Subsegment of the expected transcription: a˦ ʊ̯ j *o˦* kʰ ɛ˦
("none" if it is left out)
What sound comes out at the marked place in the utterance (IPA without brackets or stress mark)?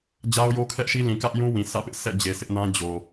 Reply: o˦